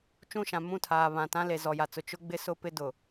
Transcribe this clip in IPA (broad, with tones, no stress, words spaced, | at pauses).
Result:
t͡ʃũ˦˨ʃã˨ mũ˦˨tʰaː˨ βã˨tã˦le˨ zɔ˨ja˨t͡sʊ˨ t͡ʃʊ˦ɡ͡bɪ˦ sʊ˦pɪ˦dʊ˨